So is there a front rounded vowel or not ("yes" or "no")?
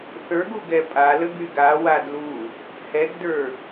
yes